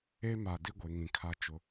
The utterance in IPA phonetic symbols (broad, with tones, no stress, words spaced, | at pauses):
e˦ma˨ di˦ɡʷe˨ŋĩ˨kʰa˦ t͡ʃʊ˦